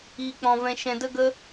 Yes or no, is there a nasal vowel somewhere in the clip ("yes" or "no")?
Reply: yes